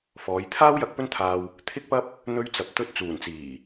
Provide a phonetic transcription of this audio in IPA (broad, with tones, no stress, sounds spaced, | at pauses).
f ɔː˨˧ j t̪ʰ aː˥ w j ɐ˧ k̚ p ɵ˥ n t̪ʰ aː˧ w | t̪ʰ ɪ˥ k̚ p ɐ˥ p̚ | n̪ ɵ˧ ɥ t͡s ɐ˨ p̚ t̪ ɵ˧ t̚ t͡s uː˨˩ n t͡s iː˨˩